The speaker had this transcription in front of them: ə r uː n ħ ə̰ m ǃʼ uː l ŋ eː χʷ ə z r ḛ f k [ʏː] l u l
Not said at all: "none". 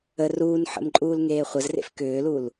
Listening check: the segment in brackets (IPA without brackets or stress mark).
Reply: ʏː